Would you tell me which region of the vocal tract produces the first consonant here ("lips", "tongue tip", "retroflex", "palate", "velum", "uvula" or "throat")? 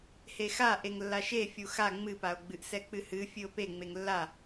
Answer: throat